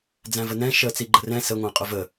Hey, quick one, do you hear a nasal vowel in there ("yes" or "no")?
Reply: yes